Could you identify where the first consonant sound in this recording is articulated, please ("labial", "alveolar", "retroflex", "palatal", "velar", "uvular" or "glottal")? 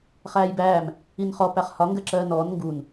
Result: uvular